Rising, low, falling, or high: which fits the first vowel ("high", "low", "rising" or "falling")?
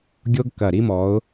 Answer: high